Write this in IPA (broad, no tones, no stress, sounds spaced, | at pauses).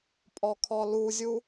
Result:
pʼ ɔ kʰ ɔ l u zʲ u